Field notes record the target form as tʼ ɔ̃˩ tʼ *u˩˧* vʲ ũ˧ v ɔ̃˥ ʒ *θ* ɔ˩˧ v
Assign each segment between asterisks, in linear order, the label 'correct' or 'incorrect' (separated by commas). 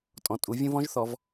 correct, correct